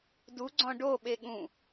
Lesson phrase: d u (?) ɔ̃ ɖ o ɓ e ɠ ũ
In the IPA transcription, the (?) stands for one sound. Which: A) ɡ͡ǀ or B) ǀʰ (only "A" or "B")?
A